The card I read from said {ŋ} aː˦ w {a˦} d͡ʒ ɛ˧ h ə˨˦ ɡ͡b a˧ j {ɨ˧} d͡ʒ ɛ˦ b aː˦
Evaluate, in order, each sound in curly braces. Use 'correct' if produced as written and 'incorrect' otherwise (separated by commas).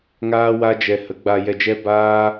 correct, correct, incorrect